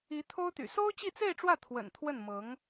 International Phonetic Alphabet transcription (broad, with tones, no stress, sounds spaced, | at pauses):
i˧˥ t̪ʰ o˥ ʊ̯ t̪ y̰˨˩ s o˥ ʊ̯ t͡ɕ i˥˧ t͡s e˥˧ ɪ̯ ʈ͡ʂ w ä˥˩ t̪ʰ w ə̰˨˩ n t̪ʰ w ə˥˩ n m ɤ˧˥ ŋ